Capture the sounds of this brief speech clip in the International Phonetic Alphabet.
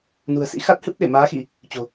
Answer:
nṳ˨˩ə̯sḭ˧˥xa˦˥t̚ hɨ˦˥p̚ɗe˧˩maː˨˦xi˧˩˨ | t͡ɕo̤˨˩

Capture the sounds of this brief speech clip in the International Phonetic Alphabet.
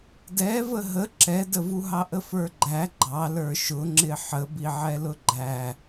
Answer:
dɛvə ɦə ǁɛdəvuɦɑ ʔəfə˞ɡ͡ǃæ ɡ͡ǃɑ lə˞ʃʊŋ͡ǁɪ ħəbiʕɛlʊ ɡ͡ǃæ

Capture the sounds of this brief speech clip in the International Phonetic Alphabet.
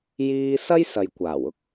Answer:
jiː˥ sɐ˥jsɐ˨jkʷaː˨˩wʊ˥k̚

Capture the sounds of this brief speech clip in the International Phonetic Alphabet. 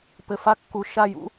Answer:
pɘ˩fa˦˨kːu˩ ʃa˦˨jṵ˦

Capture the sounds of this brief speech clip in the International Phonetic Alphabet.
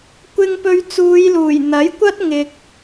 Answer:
kʷɪ˧ŋpɵ˧ɥt͡suː˨˧jluː˨˩j n̪ɐ˨˥jkʷɐ˥t̚ ŋɪ˨k̚

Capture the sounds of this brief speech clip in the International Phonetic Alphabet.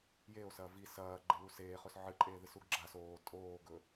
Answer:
jeo̯sɐː vi sɐːɡ͡ǃewus eːχɵs ʕɨǃʼeːðɨsuɡ ɡ͡ǁas oː tʼoːɡɵ

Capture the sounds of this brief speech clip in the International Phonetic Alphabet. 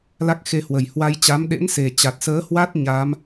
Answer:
la˦˥k̚xe˧hwə˨˩j hwa˧jt͡ɕa˨˦m ɗḛ˧˥nse˨˩ t͡ɕa˨˩t̚səː˨˦hwa˦˥t̚ ɲaː˨˦m

